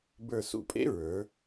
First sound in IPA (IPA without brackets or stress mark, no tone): b